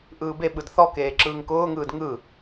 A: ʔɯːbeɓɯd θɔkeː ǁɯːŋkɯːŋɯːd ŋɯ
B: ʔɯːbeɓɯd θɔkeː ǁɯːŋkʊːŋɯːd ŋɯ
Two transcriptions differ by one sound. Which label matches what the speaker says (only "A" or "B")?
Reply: B